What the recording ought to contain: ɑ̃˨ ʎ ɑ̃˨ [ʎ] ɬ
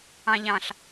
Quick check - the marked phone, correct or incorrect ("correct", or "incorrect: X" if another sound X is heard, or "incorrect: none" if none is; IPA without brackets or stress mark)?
incorrect: none